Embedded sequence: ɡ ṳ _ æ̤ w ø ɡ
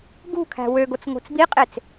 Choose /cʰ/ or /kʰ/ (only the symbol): kʰ